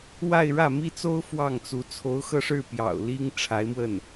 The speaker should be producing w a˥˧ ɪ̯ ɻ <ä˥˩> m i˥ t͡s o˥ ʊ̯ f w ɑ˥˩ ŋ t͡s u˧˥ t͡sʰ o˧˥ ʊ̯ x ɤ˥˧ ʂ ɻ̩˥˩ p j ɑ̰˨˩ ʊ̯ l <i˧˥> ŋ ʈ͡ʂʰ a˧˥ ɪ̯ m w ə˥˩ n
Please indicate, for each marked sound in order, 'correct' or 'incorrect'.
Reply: correct, incorrect: i˥

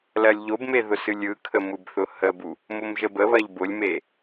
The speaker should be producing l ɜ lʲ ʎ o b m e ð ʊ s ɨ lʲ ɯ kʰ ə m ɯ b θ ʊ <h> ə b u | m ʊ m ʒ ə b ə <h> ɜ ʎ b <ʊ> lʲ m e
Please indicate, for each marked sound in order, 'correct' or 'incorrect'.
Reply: correct, incorrect: β, correct

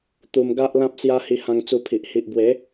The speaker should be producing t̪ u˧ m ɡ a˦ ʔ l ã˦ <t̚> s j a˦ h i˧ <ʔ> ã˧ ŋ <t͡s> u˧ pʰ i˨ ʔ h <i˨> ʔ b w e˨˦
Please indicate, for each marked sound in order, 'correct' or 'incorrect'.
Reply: incorrect: p̚, incorrect: h, correct, correct

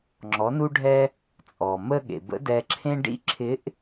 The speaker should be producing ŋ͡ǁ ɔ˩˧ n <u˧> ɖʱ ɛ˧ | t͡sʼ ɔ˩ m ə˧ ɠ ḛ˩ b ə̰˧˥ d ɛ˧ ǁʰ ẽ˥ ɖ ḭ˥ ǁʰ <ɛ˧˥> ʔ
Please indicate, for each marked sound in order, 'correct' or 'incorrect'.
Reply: correct, incorrect: ɪ˧˥

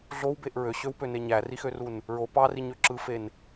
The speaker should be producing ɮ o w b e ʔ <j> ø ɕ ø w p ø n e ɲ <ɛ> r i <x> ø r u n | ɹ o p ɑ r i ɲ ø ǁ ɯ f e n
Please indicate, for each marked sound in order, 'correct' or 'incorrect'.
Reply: incorrect: ɹ, incorrect: æ, correct

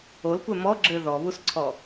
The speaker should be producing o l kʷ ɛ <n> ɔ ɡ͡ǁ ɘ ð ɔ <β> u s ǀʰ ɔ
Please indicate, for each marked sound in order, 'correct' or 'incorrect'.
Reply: incorrect: m, correct

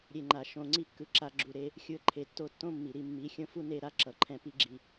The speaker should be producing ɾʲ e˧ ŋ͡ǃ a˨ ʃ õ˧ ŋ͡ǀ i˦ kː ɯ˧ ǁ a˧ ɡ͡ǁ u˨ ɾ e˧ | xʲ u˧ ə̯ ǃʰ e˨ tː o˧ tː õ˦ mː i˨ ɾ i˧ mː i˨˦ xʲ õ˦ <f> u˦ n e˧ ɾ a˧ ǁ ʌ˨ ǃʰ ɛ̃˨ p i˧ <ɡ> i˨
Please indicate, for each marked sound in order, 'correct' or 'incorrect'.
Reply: correct, incorrect: ɡ͡ǁ

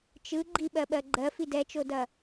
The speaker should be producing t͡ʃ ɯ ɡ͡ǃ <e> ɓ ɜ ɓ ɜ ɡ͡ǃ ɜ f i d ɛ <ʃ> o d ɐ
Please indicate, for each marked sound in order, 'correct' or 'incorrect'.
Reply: incorrect: i, incorrect: t͡ʃ

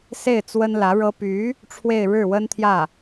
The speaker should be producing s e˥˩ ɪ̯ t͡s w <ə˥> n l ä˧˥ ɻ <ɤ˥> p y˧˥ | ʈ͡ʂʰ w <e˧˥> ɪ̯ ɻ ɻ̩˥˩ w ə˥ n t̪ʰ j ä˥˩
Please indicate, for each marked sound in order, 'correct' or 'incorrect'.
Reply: correct, correct, incorrect: e˥˧

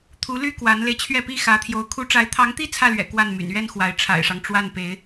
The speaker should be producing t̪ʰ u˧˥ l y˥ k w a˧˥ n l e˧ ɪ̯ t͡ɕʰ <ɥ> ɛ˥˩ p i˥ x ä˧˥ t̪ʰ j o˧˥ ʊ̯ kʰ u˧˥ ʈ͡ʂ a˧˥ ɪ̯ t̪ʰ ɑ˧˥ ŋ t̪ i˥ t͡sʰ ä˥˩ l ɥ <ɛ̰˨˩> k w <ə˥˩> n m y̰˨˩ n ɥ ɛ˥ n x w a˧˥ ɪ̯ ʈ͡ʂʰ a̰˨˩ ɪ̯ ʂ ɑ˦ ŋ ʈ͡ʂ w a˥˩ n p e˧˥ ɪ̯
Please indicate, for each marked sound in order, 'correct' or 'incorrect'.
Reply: correct, correct, incorrect: a˥˩

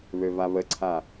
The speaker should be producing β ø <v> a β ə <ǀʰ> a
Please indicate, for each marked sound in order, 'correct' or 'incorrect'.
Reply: correct, correct

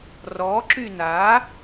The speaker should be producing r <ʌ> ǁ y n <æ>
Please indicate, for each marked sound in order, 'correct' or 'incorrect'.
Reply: incorrect: ɔ, incorrect: a

